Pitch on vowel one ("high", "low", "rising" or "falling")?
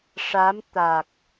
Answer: rising